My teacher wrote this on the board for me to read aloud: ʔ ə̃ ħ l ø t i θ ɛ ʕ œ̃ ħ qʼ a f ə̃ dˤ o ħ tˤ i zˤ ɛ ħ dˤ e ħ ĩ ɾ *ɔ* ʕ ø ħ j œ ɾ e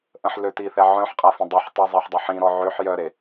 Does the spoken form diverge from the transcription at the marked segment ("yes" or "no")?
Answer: no